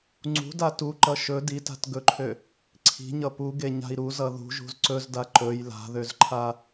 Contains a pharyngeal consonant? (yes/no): no